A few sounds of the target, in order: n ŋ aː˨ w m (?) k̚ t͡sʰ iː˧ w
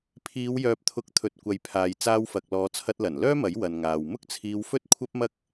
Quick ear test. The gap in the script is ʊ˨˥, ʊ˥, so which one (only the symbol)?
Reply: ʊ˥